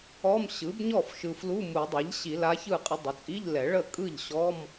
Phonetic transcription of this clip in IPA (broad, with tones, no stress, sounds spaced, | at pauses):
ɔ˧˥˧ m ɕ ɯ˩˥ b ɲ ɔ˥˩ f ʃ ɯ˨ f l u˧˥˧ m u˨˩˦ dˤ ɛ˩˥ ʎ ɕ i˨˩˦ l a˧˥ ç ɯ˥˩ qʼ ə˧˥ dˤ ə˩˥ t͡sʼ i˧˥˧ ʎ l ɛ˨˩˦ ɭ ə˥˩ kʼ ɯ˥˩ ʎ ɕ ɔ˧˥˧ m